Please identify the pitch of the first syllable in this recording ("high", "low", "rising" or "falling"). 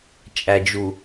low